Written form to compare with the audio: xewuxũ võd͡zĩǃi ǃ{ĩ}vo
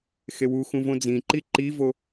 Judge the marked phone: incorrect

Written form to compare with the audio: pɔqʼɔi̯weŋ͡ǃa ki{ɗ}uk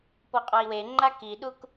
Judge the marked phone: correct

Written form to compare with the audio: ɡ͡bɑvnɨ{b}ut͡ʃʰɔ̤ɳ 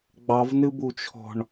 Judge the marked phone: correct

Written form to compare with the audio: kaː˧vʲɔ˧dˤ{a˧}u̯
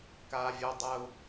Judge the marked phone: correct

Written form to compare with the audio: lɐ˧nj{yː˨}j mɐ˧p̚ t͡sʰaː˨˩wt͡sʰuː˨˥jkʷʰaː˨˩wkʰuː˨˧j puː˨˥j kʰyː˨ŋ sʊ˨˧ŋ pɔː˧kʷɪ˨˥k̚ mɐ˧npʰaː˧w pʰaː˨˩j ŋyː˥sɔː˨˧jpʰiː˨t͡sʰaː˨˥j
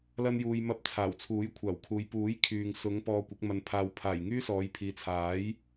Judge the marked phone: incorrect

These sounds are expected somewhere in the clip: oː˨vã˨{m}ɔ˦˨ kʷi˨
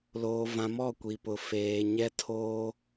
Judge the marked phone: correct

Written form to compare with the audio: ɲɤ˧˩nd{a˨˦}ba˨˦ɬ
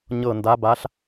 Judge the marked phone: correct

